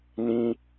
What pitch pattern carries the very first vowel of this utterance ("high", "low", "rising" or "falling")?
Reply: high